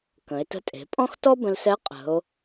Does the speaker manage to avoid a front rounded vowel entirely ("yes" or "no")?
yes